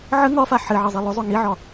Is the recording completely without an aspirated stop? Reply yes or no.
yes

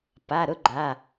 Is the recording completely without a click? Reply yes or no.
no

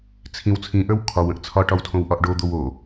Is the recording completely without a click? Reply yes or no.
yes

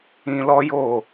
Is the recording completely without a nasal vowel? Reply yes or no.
no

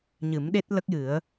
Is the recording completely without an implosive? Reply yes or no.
no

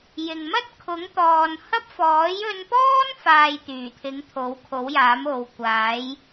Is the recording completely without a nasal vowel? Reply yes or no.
yes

